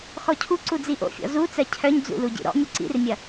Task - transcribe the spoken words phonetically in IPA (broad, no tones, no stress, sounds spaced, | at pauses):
x ɔ cʰ u ǀ u d͡z i ʔ o̰ fʲ ɔ̰ z u t͡s ɜ cʰ œ ɲ d͡z ṵ l u ɟ ḭ ɾ ɔ̰ mʲ u ǀ ḭ r mʲ ɐ